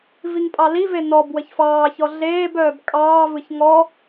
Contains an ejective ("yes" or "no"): yes